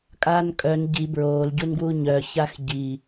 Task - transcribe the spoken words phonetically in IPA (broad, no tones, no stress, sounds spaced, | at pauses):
kʼ aː n kʼ œ n ɟ i b ɹ oː l ɟ u n ɡ w u ɲ œ ç a x ɟ i